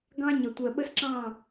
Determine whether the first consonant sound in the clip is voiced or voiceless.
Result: voiced